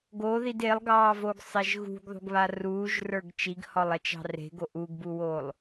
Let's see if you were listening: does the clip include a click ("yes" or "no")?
no